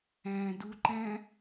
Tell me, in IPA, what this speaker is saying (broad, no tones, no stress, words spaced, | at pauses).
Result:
æ̃ːduǃæ̃